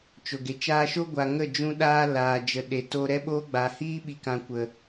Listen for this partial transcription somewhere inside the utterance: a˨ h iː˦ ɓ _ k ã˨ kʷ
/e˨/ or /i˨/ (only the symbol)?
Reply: i˨